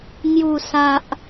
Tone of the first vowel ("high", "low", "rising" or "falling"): low